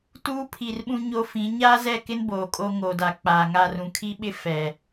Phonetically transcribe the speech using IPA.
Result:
t uː˦ pʰ i˨ r ɓ ũ˦ ɲ o˦ f ĩ˨˦ ɲ aː˦ z ɛ˦˨ k ɪ˦ n b oː˨ kʼ o˦ ŋ oː˨ d a˨ k͡p aː˨ ŋ a˦˨ r ũ˨ kʰ i˦ ɓ ɪ˦ f ɛ˨

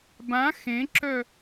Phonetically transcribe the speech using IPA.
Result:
b ã x ẽ ǁ œ

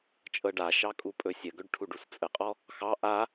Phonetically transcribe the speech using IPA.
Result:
t͡ʃʼ ɤ ɖ a ʃ ɑ kʼ u pʼ ɵ sʲ ə ɡ ɵ ɖ ʈʰ u ɖ u s t͡sʼ ə qʼ ɔ | x ɑ ʔ a

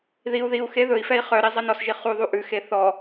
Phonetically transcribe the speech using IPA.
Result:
ð i u̯ ð i u̯ x e ð ɵ i̯ f ɛ i̯ χ œ ɾ i zˤ e n ɔ s ʒ i χ u ðˤ u ʔ ʉ x e θ ɔ

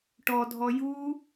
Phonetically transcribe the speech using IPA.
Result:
ʈ ɔ dʱ ɔ j u

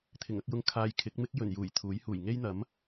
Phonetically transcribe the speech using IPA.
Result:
t̪ʰ ɪ˨˩ ŋ ɐ˧ k̚ j ʊ˧ ŋ kʰ aː˨ j kʰ ɪ˨˥ k̚ m ɪ˥ k̚ j ɵ˨˩ n j uː˨˩ j t̪ʰ uː˨˥ j h uː˨˩ j ŋ e˥ j n̪ ɐ˨˥ m

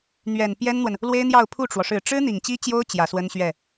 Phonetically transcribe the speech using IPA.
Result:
n̪ ɥ ɛ˨˩ n p j ɛ˥ n n̪ w ə˨ n | l w e˥ ɪ̯ n̪ j ɑ˥˧ ʊ̯ pʰ u˥˩ ʈ͡ʂ w ɔ˩ ʂ ɻ̩˨˩ ʈ͡ʂ ɻ̩˥ n̪ i˨˩ ŋ t͡ɕ i˥ t͡ɕ j o˥ ʊ̯ t͡ɕ j ä˨˩ s w ə˥ n ɕ ɥ ɛ˥˩

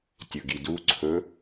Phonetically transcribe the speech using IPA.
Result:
tʲ ɵ ɡ i d u ǀʰ ɵ

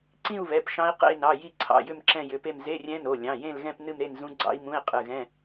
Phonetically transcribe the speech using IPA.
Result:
ǀ ĩ˥˧ u̯ β ɛ˩˧˩ p ʃ ɑ̃˦˥ i̯ q ḛ˥˧ i̯ n ɑ˩˧˩ j i˥˧ ǀʰ ɑ̰˩˧˩ j ʏ˥˧ m ǁ ɛ̃˥˧ j ʏ˩˧˩ p e˥˧ m z e˧˥˧ rʲ ɛ̃˦˥ n o˩˧˩ lʲ ɑ̃˩˧˩ j ẽ˥˧ l ɣ ɛ̃˥˧ p n ɨ˥˧ m ɾ e˥˧ n z ũ˦˥ ɡ͡ǀ ɑ̰˦˥ i̯ m ũ˧˥˧ i̯ qʼ ɨ˩˧˩ ɣ ɛ̃˧˥˧

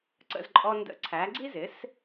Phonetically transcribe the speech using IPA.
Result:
ǀ ə̰˥˩ z ǃʼ ɔ˧ n d ə̰˧ ǀʰ æ˩˥ ɡ͡ǀ i˥ z ɪ˩˥ s

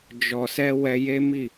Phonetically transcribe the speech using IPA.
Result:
d͡ʒ ɔ˨ s ɛ˧ w ɛ˧ j e˦ m i˦˨

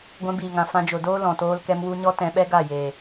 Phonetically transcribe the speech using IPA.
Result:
ɡʷ ɛ̃˧ b iː˨ ŋ ã˨ f ã˧ d͡ʒ o˨ d oː˦ l ɔ̃˨ t oː˧ l k ɛ˧ m w u˧ ɲ ɔ˦ t ɛ̃˧ ɓ ɛ˦ ɡ a˦˨ j eː˨

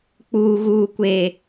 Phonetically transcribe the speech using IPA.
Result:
k͡p uː˨ ɣ uː˨ kʷ eː˨

